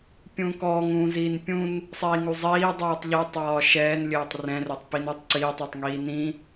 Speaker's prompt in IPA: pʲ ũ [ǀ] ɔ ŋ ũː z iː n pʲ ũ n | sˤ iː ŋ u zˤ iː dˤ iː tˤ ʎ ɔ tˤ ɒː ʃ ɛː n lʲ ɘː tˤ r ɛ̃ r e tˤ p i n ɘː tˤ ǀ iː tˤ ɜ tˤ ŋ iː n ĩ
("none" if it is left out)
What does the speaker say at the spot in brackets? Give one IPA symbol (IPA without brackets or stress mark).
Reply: k